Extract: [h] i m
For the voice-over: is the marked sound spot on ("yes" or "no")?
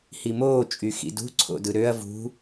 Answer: yes